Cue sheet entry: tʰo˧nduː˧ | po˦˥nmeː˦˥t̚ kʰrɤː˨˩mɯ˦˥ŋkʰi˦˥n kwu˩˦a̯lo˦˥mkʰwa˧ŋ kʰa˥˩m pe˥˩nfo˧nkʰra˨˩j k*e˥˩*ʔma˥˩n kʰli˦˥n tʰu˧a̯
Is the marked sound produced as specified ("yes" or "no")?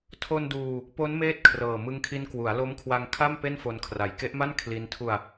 no